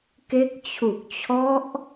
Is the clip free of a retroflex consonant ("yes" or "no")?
yes